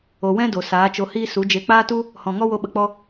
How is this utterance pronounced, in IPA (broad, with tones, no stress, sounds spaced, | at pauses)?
o˨ w ɛ̃˦ d o˨ s aː˨˦ t͡ʃ o˧ h iː˦ s u˨˦ d͡ʒ e˧ k͡p aː˦ t u˦ | h ɔ̃˨ ŋ ɔ˦ w o˧ ɓ ə˧ k͡p ɔ˦